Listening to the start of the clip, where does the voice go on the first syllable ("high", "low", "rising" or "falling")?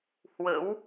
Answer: rising